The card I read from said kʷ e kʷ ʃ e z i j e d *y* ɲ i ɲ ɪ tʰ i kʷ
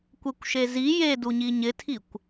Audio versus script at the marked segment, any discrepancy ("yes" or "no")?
yes